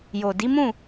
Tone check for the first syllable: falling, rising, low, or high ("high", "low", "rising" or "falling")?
low